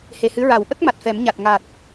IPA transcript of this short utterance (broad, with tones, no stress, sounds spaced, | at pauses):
h e˨˩ h ɨ˧˥ ɹ a˨˩˦ w ʔ ə˦˥ k̚ m a˨˩ t̚ f ɛ˨˩˦ m ɲ a˨˩ t̚ ŋ a˨˩ t̚